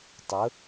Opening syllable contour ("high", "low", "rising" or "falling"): rising